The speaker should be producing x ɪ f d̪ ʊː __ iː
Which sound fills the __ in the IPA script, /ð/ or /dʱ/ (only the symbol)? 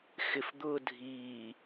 dʱ